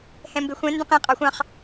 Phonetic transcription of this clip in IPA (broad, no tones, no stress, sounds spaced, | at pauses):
h ɛ̃ m b e xʷ ɛ̃ n d ə̃ q ẽ qʼ ɑ xʷ ɑ̃ χ